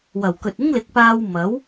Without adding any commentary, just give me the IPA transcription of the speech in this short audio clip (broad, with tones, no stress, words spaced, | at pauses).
wɐ˨˩wkɵ˨t̚ ɪ˥ŋlɪ˨˥k̚paː˧w mɐ˨˥w